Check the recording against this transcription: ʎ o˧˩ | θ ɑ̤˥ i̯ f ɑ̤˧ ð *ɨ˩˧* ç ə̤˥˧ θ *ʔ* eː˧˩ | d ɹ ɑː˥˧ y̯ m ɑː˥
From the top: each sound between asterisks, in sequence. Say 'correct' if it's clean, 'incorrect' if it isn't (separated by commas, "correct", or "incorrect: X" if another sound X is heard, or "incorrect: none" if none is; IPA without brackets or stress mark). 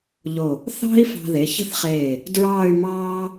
incorrect: e˩˧, incorrect: χ